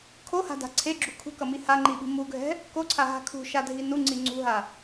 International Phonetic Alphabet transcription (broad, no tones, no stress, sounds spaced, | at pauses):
kʰ o h a̤ d a̤ ǀʰ e ɡ͡ǁ u kʰ ṳ k ʌ m i h a ŋ͡ǃ i ɓ i̤ m u ɡʱ ɛ̤ | k o ǀʰ a ɦ a̤ kʰ ṳ ʃ a dʱ i n u ŋ͡ǀ i ŋ͡ǀ ṳ ɦ a